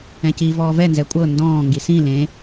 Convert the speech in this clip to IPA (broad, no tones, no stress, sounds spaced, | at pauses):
ɛ̃ c i v ɔː v ɛ n z ɛ kʷʼ ɤ n d ɔ̃ː ŋ ɡ i s ĩ l ẽ